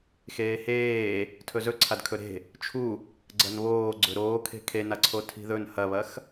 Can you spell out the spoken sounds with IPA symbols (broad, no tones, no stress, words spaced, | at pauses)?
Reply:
xeːheː | tʰɵzɵǀʰad kʰɵɾe̤ | t͡ʃʰu | ɡ͡ǀɐnβoː ɡ͡ǀɵɾoːkʰe̤ kʰenaǀʰo tʰi̤ðɵn hɐβɐx